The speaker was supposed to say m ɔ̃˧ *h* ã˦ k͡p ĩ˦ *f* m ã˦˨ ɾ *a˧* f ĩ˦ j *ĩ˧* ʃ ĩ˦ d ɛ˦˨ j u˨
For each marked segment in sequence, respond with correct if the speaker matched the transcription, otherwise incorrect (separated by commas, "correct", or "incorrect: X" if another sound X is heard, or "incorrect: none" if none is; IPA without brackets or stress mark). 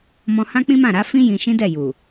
correct, incorrect: none, incorrect: a˨˦, correct